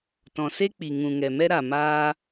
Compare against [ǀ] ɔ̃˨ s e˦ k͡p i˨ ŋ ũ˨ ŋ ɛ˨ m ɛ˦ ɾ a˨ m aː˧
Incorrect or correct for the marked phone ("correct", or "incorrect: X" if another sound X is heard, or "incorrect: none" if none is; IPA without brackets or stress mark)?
incorrect: t